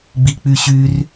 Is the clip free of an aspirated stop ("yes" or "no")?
yes